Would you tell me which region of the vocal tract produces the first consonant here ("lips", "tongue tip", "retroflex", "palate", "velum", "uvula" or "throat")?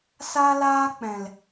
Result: tongue tip